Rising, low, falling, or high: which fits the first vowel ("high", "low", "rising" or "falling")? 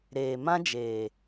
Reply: low